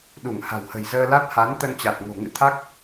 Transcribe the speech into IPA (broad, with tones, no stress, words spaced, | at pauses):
ɗu˧˩ŋha̤˨˩whə̤˨˩j zəː˧la˦˥t̚ha˨˦n t̪ə˧nt͡ɕa˨˩t̚ ŋo̤˨˩ŋɨ̰˧˥t̪ʰa˦˥k̚